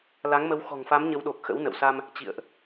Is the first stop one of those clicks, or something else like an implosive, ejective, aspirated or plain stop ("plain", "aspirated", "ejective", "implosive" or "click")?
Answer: implosive